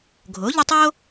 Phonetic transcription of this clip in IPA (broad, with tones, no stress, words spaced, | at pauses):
ɡʱo˩˥ʎʊ˦ tˤo˦